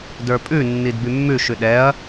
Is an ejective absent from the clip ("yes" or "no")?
no